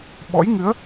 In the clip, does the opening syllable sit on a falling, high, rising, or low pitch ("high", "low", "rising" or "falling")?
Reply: rising